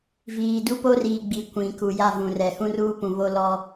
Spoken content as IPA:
viː˨du˦po˦riː˨ ɡ͡bi˨ kʷĩ˨ ku˨ja˦˨vũ˨ rɛ˨ hũ˦ruː˦pũ˨ βo˦lɔ˦

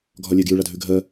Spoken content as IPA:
ɡʱɒlʲeɡjʉ ɭadʱʉɡʱɜ

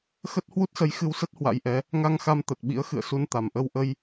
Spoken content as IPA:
xə˦˥t̚ hwu˦˥t̚sə˨˦j xɨ˧wsə˦˥t̚ hwa̰˧˥jʔɛ˨˦ | ŋa˧ŋxa˧m t̪ə˨˩t̚ɓḭ˧˥ə̯xɨ̰˧˨ə̯ su˧nt̪a˨˩m ʔə˧wʔə˧j

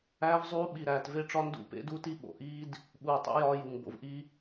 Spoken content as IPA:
æː˦vzˤuː˦ ɓi˨ ɾæː˨tve˦ʈ͡ʂɒ˦ ndṵ˦˨pḛ˦du˦ti˦ ɓo̰˨ʔiː˦d | ɓuː˨tˤḛ˦ jɒː˦ju˨ŋ bo̰˨vʔi˦

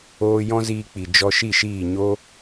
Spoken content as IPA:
oː˧jɔ̃˦ziː˧k͡pi˨ d͡ʒɔ˧ʃi˦˨ʃiː˦˨ ɲo˦

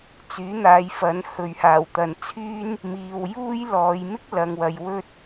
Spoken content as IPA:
t͡syː˨˥n̪aː˨˧j fɐ˨˥n hɵ˨ɥhaː˨˩w t̪ɐ˨nt͡sʰyː˥n | miː˨wjuː˥jlɔː˨˧j mɪ˥k̚lɐ˨ŋwɐ˨j wɵ˧t̚

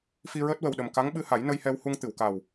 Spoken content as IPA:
fi˧ɹəː˦˥t̚wə˨˩wɗə˨˩m ka˧˥ŋɓɨ˧ha˨˩˦j nə˧jhɛ˧whu˧ŋ t̪ɨ˨˩˨wka˨˩w

